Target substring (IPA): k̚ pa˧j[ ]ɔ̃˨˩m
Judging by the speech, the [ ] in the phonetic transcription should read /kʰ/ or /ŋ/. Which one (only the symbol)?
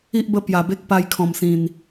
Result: kʰ